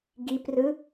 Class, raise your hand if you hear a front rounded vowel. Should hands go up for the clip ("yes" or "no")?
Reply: no